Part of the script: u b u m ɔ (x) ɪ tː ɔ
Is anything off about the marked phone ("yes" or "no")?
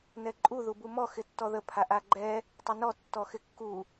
no